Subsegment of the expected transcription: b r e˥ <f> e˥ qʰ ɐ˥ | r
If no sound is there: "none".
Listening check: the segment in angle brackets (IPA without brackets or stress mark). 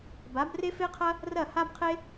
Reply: f